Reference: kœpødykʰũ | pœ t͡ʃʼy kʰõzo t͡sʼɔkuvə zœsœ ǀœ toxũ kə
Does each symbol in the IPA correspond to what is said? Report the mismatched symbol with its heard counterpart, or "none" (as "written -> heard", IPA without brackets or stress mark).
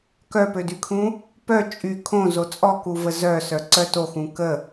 none